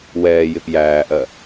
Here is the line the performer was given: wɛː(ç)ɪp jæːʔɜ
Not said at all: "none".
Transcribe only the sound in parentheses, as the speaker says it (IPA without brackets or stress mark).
j